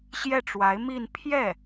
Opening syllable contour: falling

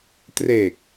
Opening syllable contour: low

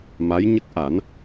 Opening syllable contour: rising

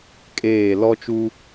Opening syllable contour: falling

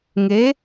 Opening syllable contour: rising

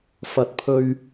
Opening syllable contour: low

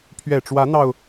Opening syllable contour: low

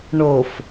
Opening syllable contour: low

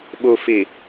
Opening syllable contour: low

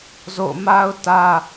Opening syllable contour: falling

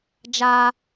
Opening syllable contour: high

